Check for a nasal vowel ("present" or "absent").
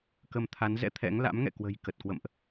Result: absent